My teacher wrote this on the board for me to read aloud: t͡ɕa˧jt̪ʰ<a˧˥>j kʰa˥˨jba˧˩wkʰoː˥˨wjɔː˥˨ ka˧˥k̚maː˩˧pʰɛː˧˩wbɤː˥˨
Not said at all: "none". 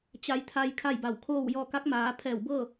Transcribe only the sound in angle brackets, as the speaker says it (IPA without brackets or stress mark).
a˧